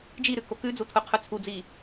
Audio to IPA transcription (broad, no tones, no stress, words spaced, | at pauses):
d͡ʒiɾʉ kokʉd͡zu tʰuqʰʉt͡sʰud͡zi